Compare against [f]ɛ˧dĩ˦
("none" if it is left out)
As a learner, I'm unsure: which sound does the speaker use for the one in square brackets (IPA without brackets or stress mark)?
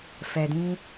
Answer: f